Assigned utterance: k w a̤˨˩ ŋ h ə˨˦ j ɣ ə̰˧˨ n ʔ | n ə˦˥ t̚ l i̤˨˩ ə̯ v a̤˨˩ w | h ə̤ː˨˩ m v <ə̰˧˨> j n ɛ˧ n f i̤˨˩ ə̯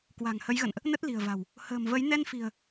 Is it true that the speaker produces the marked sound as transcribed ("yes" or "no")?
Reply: no